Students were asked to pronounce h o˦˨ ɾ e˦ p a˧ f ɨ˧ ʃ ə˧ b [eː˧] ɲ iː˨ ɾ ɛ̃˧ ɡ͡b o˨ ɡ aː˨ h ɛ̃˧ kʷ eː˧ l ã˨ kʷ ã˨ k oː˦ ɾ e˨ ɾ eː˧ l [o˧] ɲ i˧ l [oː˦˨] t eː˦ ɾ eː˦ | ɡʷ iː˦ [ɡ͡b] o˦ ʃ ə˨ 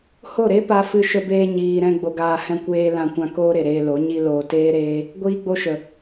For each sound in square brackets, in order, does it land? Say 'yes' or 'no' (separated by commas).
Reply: yes, no, no, yes